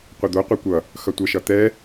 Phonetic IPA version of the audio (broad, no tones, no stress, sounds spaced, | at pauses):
qʷ ʌ d̪ o qʷ e kʷ ʌ | x ʌ tʷ ʌ ʃ ʌ t̪ ɛ